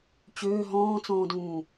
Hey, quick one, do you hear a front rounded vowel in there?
yes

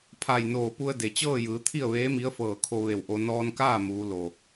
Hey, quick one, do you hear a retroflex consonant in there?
no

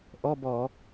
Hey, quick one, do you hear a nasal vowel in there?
no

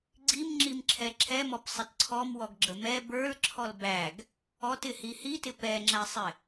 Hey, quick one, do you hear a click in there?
yes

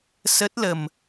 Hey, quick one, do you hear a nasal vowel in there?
no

